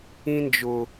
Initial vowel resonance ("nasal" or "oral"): nasal